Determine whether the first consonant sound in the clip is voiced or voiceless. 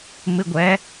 voiced